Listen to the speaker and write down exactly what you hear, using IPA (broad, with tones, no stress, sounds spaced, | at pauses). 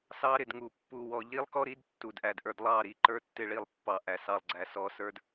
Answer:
s ɑ˦ ɾ ɪ˨ d ŋ u˨ pː u˨ w ɔ˨ ʎ i˦ lˠ k ɔ˦ ɾ i˨˦ d tː u˨ d ʔ æ˨ d ʔ ə˞˨ d lˠ ɑ˦˨ ɾ i˦˨ ǃ ə˞˦ tː ɪ˦˨ ɭ i˦˨ lˠ pː ɑ˨ ʔ æ˨ s ɑ˨ lˠ ɡ͡ǀ æ˨ s ɔ˨ s ə˞˦ d